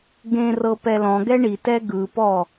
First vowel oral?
no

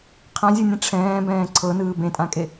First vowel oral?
no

